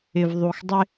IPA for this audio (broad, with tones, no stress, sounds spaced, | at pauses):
ɪ˨ v ðˤ u˨ x dˤ ɪ˦